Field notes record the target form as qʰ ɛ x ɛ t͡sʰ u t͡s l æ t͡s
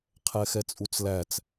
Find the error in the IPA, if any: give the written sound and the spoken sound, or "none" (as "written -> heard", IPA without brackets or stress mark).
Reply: t͡sʰ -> t͡sʼ